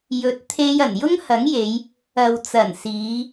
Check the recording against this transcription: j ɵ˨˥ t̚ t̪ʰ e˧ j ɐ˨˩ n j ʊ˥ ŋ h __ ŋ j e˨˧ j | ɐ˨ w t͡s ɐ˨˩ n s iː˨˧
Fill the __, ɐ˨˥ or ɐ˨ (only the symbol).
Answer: ɐ˨˥